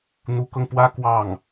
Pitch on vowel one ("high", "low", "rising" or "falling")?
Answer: rising